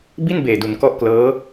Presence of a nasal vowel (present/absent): absent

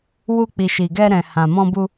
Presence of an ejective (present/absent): absent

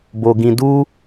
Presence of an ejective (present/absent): absent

